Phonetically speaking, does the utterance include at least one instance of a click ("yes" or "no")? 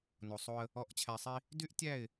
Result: no